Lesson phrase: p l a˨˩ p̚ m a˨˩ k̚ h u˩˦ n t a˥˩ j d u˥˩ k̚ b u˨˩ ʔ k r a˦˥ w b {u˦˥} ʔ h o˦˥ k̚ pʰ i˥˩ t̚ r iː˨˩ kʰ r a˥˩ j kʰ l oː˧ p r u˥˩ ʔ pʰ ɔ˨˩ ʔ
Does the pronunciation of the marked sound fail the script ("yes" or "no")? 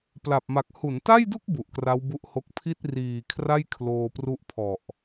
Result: no